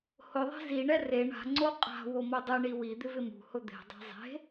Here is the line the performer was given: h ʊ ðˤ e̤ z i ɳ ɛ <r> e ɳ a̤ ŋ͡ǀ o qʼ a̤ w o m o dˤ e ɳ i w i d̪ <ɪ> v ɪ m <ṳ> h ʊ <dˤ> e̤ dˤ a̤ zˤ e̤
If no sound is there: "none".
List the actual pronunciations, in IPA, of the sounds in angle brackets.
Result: r, ɪ, ṳ, d̪

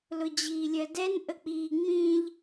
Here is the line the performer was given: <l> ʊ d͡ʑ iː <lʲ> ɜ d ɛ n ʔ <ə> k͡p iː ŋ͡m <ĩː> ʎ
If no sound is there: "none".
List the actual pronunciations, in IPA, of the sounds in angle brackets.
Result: l, lʲ, ə, ĩː

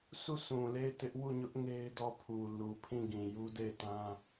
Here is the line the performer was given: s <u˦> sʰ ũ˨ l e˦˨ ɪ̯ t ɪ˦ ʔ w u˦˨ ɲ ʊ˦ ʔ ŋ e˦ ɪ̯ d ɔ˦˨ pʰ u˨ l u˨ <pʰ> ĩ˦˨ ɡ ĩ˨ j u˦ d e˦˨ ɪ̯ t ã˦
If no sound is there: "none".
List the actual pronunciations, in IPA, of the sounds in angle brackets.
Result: u˦˨, pʰ

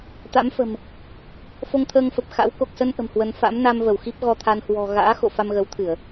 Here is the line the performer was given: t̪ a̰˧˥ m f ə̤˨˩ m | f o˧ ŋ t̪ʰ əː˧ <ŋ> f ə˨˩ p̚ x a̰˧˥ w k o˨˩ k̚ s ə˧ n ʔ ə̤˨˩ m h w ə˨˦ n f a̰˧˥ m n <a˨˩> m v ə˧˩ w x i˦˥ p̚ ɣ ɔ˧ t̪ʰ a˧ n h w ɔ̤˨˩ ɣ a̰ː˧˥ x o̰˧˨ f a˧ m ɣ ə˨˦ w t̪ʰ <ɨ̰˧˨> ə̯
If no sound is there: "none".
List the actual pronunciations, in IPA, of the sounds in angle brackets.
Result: ŋ, a˧, ɨ˧˩˨

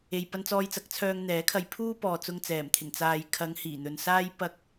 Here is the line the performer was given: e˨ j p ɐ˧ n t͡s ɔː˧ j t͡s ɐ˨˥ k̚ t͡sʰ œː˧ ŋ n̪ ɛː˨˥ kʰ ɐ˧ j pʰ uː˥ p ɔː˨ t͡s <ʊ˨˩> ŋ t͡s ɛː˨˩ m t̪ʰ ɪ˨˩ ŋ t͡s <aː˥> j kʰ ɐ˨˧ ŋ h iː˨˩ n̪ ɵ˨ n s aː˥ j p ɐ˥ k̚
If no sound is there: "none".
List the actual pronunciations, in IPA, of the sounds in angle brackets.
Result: ʊ˧, aː˨

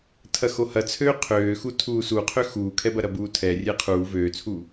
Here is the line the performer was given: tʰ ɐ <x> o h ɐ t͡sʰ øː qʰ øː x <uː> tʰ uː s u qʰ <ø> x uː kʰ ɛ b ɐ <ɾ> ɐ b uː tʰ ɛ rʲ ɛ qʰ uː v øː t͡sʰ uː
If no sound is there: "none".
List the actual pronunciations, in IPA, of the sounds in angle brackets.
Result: x, u, ø, ɾ

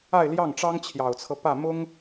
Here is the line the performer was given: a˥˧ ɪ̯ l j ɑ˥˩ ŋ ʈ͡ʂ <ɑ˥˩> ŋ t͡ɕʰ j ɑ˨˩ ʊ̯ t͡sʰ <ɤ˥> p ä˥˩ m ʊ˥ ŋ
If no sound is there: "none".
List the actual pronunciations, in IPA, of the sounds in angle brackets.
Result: ɑ˥, ɤ˦

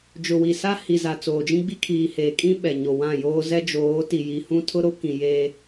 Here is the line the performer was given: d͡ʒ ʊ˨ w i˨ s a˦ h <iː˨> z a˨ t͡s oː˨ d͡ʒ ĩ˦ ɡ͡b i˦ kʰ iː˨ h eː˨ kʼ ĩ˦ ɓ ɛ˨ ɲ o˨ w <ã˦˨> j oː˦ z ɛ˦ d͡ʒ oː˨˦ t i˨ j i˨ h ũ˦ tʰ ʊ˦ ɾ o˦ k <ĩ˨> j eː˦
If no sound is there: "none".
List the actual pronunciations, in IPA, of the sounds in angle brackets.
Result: i˨, ã˦˨, ĩ˨

